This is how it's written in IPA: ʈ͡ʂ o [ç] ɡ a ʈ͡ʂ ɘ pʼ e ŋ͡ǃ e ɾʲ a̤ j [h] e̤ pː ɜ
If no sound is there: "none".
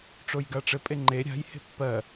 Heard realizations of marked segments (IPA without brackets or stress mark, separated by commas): j, h